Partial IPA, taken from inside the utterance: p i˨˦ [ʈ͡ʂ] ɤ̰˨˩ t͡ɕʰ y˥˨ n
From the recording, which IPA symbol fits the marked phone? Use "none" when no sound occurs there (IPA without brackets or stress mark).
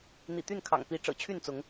ʈ͡ʂ